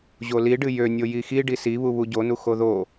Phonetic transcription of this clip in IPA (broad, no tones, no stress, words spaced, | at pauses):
ʑoliɖɨ jønʲo jixi ɖisiβu βuɟonu xoðo